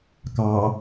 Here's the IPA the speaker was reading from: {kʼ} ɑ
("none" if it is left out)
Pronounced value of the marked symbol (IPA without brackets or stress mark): k